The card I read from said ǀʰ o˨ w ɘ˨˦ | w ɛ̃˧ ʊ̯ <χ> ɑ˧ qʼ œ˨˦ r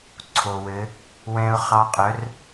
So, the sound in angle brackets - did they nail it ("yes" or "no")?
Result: yes